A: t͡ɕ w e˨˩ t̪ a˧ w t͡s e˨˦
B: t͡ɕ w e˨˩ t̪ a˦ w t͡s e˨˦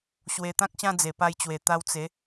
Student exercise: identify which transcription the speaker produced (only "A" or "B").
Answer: A